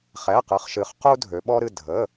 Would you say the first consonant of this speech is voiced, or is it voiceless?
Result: voiceless